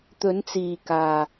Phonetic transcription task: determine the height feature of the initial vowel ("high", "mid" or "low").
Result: mid